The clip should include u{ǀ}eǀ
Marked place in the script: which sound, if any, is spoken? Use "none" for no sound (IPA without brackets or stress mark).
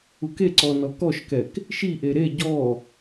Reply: k